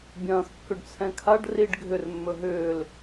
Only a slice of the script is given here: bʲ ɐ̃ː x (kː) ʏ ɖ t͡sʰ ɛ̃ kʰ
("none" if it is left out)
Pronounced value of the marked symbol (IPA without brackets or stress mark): kː